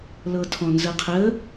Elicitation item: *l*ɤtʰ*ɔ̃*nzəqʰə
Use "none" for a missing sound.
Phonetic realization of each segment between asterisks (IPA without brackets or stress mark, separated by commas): l, ɔ̃